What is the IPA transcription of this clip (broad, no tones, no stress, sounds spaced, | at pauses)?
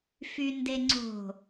f y n d e ŋ͡ǀ o̤